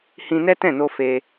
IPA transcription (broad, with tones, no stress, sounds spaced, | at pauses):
h ĩ˧ n ɛ˦ t ɛ̃˦˨ n o˧ f e˧